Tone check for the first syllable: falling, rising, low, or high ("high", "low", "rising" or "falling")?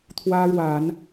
high